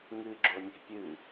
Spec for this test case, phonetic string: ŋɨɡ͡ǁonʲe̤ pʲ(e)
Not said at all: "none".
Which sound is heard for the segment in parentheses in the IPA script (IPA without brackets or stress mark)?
ɨ